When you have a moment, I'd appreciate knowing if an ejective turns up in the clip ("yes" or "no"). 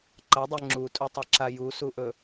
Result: yes